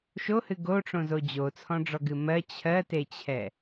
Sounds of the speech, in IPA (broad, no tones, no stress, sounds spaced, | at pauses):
ʃ o h ɨ ɡ o ʈ͡ʂ õ z o d͡ʑ o t͡sʰ ɔ̃ ɖ͡ʐ ɔ ɡ ɨ m ɜ t͡ɕʰ ɜ t e t͡ɕʰ ɛ